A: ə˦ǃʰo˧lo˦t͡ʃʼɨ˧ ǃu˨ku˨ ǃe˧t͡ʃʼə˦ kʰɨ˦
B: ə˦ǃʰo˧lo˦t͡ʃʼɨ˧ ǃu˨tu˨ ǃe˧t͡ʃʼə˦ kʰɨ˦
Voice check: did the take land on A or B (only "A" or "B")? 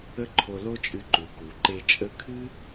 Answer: A